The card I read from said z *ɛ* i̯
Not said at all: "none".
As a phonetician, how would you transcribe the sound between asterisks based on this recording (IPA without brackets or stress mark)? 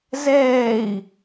ɛː